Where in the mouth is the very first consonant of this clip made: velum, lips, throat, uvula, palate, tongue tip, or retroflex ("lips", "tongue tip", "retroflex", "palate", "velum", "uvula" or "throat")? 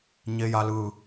palate